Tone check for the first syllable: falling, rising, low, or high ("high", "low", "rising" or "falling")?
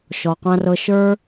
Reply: low